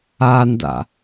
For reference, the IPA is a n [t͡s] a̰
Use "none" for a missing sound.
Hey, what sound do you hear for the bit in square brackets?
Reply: d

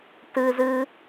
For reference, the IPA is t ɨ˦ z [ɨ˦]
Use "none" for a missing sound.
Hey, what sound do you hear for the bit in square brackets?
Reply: ɨ˦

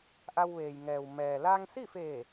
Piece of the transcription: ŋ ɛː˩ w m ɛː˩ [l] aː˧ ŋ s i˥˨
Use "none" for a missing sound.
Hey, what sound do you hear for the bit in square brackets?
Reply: l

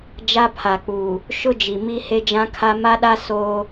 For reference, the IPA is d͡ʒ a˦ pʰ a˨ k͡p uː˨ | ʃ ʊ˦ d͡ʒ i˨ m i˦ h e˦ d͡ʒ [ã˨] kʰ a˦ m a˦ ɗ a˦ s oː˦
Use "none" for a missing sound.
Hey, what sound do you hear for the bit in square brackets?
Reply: ã˦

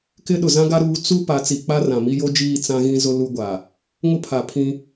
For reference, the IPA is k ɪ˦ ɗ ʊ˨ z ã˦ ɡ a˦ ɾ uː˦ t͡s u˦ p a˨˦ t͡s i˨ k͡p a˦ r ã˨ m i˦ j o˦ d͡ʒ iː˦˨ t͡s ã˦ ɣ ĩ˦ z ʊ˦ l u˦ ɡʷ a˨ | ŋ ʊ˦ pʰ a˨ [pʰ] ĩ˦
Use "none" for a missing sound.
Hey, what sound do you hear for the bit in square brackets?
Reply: pʰ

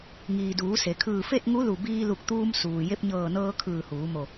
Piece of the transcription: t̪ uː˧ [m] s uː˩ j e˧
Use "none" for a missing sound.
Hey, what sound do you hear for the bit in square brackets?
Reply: m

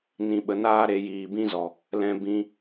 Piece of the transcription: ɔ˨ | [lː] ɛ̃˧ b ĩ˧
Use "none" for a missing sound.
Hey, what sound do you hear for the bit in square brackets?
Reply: l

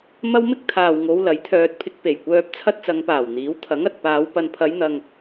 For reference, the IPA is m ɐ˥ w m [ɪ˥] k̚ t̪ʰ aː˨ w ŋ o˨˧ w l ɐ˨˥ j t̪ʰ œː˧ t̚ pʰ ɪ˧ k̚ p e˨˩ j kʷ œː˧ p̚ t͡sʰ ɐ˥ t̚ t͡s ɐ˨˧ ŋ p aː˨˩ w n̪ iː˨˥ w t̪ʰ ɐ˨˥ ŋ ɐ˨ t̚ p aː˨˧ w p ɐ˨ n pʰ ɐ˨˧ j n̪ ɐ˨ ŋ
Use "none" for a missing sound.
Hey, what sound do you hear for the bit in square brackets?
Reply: ɪ˥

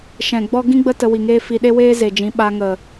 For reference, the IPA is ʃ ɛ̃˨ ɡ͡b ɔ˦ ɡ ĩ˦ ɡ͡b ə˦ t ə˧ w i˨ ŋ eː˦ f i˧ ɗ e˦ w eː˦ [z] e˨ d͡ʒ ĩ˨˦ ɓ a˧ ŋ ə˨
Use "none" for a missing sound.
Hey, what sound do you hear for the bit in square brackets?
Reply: z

